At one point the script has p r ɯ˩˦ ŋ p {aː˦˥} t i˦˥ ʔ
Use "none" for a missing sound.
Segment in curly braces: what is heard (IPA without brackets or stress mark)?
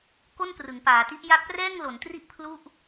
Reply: aː˩˦